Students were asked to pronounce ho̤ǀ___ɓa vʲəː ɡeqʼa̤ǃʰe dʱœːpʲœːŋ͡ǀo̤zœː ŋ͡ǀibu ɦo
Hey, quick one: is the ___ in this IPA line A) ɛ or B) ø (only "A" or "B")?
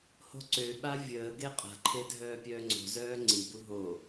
B